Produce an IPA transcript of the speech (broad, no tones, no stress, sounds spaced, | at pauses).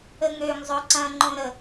ə ŋ ø ŋ zˤ o ǀ ɐ̃ ŋ͡ǃ õ ɾ ə